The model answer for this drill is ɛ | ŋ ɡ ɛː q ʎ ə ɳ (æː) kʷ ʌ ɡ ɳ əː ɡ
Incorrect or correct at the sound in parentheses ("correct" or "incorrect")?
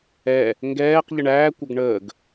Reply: correct